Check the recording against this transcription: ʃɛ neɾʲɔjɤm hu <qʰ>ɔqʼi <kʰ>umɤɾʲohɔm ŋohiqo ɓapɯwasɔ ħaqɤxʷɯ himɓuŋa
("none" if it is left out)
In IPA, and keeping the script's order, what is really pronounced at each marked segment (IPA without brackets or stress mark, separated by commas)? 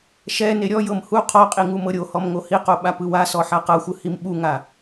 qʰ, ŋ